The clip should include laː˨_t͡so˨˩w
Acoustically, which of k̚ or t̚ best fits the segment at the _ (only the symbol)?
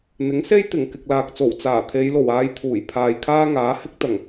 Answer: k̚